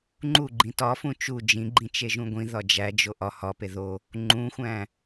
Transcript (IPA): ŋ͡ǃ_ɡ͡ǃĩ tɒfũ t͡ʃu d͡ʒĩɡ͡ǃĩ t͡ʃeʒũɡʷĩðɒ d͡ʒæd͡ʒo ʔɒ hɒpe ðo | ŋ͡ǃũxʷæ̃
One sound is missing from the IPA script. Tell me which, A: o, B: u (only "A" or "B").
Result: B